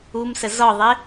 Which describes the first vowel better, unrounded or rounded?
rounded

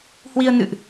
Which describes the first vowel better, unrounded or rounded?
unrounded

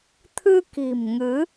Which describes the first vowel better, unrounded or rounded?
unrounded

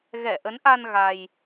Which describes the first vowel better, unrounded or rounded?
unrounded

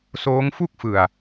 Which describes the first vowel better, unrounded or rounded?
rounded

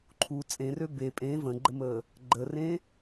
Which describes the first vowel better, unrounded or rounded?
rounded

